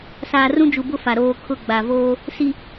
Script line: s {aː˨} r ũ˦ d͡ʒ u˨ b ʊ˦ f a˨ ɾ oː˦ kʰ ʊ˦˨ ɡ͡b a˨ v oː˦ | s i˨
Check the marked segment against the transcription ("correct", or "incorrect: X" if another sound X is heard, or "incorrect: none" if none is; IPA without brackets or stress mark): correct